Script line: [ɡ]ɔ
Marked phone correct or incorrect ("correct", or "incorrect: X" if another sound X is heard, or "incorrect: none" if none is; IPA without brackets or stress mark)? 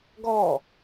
correct